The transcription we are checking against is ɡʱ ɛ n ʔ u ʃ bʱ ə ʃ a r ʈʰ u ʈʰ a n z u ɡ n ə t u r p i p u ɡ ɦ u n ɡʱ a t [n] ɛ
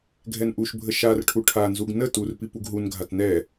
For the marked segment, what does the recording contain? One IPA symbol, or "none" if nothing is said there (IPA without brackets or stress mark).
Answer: n